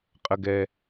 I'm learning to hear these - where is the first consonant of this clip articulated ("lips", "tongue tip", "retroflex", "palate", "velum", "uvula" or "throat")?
uvula